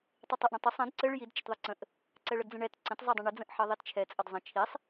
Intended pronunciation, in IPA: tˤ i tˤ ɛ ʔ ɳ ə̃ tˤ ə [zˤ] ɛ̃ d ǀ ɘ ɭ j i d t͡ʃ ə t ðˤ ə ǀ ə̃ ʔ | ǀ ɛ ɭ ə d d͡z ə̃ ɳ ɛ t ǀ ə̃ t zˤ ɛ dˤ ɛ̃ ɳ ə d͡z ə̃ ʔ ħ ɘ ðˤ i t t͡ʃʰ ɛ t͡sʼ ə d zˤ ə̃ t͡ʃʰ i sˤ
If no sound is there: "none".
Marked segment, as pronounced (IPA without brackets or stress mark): sˤ